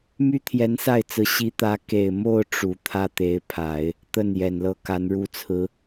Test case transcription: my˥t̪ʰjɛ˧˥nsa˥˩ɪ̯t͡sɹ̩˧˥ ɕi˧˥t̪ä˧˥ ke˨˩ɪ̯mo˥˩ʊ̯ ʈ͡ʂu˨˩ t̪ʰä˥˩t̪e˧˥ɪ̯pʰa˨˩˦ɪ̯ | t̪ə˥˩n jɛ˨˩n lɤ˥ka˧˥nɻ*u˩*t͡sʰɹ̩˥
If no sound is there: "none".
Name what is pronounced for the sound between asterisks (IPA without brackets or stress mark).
u˥